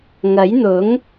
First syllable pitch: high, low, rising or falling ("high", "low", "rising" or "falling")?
rising